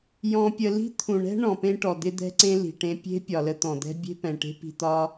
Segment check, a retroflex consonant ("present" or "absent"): present